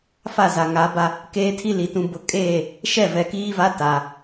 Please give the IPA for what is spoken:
f a˦˨ z a˨ ŋ a˨˦ b a˦ | k eː˦ tʰ i˦ l i˨ t ũ˨ b ʊ˨ kʼ eː˦˨ | ʃ ɛ˦˨ v ɛ˨ k iː˦ v a˦ t a˨

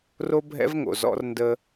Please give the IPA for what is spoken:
r o˦ bʱ ɛ̰˦ v ŋ o̰˨ z ɔ̰˦ r n d ə˦

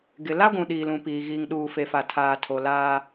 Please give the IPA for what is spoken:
ɡ ɪ˨ l a˦ ɡʷ ũ˨ ɗ iː˨ l ũ˨ p iː˨ ɣ iː˨ ŋ ɗ uː˨ f e˨ f a˨ tʰ aː˨ tʰ o˨ l aː˦

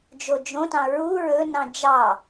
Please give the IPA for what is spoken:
d͡ʒ o d͡ʒ õ t ɑ̃ ɹ u ɹ ɵ n ɑ̃ d͡ʒ ɑ

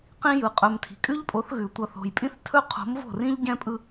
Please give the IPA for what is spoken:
q ĩ˦ j ɯ˨ qʼ ɵ˨ m tʰ i̤˨ kʼ ʉ˦ ʎ pʼ o˨˦ θ ɣ ʉ˨ tʷ ʌ˨ θ o̤˨ j pʼ ĩ˦ θ tʰ ɵ˦ qʰ o̤˨˦ m v o̤˦˨ r ĩ˦ ʎ ɟ ɛ̃˦ pʼ ɯ˦

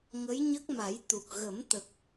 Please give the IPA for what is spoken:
ŋ ə˧˥ j ɲ ə˦˥ k̚ m a˨˩˦ j t̪ u˨˩ k̚ ɣ ə˨˩˦ m t̪ ə˨˩ k̚

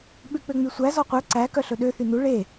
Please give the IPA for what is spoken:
ɓ ʉ k͡p ø ŋ͡m y sʷ æ z ɔ qʷ œ ǀ æ k œ ɬ ɵ ɗ ø θ y n u ɭ e

